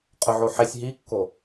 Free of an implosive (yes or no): yes